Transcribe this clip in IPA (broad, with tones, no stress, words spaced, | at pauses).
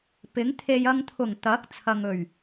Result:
pɪ˨˥ŋt̪ʰe˧j ɐ˧ŋt̪ʰʊ˨˩ŋ t̪ɐ˨˥k̚ t͡sʰɐ˨ŋ ɵ˨˩ɥ